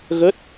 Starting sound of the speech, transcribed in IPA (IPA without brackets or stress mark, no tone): ɣ